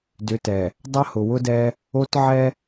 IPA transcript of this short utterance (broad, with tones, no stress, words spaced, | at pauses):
dʏ˨˦tɛ˨ | dˤʌ˦ hʊ˨wʊ˦dɛ˦ | o˦t ʕɛ˦